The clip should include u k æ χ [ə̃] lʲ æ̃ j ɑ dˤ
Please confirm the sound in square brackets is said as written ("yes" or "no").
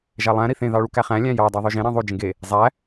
no